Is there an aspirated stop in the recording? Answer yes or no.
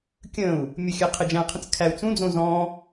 yes